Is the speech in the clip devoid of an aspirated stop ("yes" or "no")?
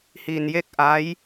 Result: yes